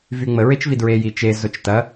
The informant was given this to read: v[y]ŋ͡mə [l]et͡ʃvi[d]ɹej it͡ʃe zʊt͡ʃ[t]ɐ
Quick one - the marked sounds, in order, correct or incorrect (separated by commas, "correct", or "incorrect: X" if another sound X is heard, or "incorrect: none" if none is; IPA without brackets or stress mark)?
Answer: correct, incorrect: ɹ, correct, correct